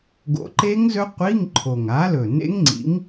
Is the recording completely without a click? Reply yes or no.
no